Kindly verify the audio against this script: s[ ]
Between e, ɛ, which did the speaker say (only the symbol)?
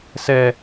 ɛ